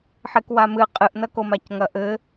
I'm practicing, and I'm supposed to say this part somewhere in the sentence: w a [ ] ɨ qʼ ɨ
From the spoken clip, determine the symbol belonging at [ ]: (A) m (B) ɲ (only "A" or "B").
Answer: A